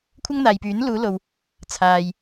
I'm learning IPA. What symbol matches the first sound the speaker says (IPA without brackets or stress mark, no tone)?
kʷʰ